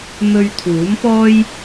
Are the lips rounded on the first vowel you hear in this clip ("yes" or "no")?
yes